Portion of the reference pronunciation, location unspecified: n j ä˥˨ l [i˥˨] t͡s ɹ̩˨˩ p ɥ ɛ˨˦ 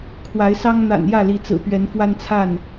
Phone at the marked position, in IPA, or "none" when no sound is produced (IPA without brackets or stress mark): i˨˦